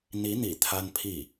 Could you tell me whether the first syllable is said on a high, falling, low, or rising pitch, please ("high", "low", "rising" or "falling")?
rising